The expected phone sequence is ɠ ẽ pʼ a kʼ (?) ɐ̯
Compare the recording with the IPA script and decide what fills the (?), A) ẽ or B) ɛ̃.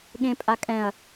B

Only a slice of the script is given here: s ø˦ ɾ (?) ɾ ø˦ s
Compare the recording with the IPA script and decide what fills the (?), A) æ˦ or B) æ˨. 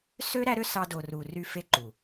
A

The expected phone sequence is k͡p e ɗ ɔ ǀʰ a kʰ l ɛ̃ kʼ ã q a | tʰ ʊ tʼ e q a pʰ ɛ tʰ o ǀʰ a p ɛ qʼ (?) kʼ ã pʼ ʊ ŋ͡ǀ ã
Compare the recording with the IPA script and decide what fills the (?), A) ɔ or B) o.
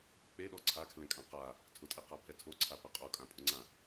B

